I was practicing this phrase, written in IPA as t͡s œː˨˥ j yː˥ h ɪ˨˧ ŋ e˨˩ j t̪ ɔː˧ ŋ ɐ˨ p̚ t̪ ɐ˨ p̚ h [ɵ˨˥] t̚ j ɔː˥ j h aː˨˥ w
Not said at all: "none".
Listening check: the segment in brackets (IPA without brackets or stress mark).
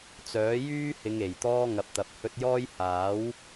ɵ˧